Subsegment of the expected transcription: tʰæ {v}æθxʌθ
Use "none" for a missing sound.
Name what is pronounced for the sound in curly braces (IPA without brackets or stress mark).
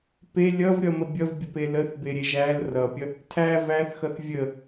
v